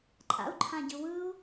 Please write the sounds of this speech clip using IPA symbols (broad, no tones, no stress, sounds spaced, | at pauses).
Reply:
ǃʼ a̰ u̯ ǃʰ ã ɟ ɯ w ɯ u̯